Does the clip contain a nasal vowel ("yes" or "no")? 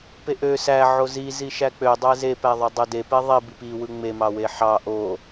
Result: no